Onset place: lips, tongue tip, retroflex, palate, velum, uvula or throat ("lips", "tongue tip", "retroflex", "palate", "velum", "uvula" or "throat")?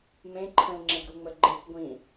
lips